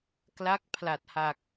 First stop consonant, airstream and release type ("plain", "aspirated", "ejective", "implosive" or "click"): plain